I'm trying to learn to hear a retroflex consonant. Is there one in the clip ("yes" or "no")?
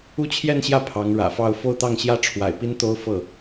yes